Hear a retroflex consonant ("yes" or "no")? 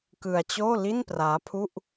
no